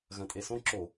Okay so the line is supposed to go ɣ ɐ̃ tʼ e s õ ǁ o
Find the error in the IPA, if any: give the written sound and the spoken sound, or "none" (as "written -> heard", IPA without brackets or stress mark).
none